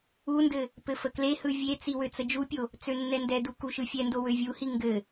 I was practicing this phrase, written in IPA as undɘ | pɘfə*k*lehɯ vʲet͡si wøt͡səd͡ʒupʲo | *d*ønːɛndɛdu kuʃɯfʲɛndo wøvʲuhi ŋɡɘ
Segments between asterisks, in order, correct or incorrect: correct, incorrect: t͡s

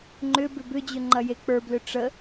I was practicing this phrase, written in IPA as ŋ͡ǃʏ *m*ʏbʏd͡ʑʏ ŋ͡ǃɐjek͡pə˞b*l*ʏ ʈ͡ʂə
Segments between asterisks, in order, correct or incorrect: incorrect: b, correct

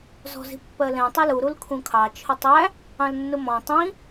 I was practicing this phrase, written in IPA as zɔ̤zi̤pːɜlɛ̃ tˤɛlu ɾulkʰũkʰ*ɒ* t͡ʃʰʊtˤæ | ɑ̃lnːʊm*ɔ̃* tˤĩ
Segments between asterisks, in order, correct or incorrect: incorrect: ɑ, correct

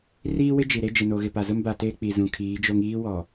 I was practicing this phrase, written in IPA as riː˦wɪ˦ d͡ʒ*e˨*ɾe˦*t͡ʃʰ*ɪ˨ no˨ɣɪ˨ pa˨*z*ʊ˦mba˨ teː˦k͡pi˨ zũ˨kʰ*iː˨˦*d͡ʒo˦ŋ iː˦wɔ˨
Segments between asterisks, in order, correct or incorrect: incorrect: i˨, incorrect: d͡ʒ, correct, correct

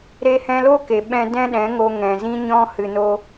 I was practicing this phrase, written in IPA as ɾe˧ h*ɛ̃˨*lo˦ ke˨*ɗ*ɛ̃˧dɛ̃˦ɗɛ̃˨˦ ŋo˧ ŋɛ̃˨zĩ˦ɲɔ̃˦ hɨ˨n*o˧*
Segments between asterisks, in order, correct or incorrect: incorrect: ɛ̃˧, incorrect: ɓ, correct

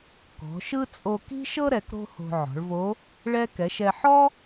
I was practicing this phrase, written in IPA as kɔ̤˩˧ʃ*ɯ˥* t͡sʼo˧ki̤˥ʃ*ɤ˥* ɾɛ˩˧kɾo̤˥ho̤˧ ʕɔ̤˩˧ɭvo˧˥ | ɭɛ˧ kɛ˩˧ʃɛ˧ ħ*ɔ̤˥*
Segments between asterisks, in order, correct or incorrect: correct, correct, incorrect: ɔ˥

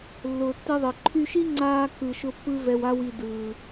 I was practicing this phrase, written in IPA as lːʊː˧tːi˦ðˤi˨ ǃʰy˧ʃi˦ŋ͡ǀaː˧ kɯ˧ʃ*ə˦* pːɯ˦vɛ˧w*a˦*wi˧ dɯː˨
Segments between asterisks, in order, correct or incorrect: incorrect: ʊ˦, correct

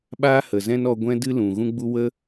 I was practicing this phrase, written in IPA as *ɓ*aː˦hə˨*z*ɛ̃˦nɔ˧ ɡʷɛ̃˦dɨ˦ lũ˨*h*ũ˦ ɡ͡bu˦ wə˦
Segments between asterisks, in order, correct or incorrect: correct, correct, incorrect: ɣ

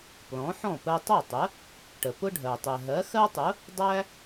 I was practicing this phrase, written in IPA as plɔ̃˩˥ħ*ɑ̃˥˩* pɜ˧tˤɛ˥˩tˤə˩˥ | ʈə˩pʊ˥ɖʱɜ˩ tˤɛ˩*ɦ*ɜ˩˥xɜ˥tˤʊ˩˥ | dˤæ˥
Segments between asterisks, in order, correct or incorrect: incorrect: ɔ̃˥˩, correct

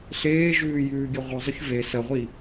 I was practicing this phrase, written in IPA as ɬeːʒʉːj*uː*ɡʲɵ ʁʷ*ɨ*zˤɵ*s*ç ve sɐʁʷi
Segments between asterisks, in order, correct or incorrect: incorrect: ʉː, correct, incorrect: none

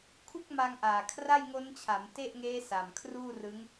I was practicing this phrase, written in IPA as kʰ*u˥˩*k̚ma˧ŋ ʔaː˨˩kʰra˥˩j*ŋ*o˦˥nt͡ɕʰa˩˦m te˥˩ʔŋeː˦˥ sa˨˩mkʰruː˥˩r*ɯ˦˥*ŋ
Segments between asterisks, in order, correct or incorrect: correct, correct, correct

